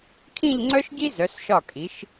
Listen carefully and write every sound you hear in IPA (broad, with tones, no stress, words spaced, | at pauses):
kʰĩ˥˧ʎŋ͡ǀœ˥ʃɟi˥ zœ˩˧sʃɒ˧˩kʼi˩˧ʃ